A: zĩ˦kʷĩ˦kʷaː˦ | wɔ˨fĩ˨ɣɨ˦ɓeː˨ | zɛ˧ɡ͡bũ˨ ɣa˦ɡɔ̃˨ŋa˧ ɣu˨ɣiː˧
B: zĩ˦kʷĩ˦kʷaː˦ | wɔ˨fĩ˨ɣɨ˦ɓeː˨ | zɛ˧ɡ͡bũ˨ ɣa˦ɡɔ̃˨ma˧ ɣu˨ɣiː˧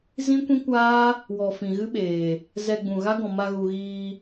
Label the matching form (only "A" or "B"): B